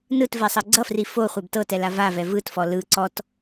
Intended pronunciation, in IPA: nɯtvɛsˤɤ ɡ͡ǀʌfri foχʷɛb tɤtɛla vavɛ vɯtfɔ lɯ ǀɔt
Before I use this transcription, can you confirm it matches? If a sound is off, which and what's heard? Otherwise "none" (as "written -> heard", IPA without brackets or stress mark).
none